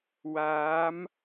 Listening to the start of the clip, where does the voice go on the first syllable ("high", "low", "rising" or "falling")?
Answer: rising